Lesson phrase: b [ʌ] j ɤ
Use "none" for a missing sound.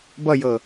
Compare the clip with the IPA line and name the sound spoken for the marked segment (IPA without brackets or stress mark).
ʌ